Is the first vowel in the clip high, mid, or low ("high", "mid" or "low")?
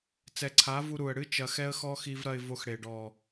mid